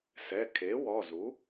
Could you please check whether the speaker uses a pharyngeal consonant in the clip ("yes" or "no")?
no